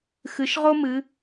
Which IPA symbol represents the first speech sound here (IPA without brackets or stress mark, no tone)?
x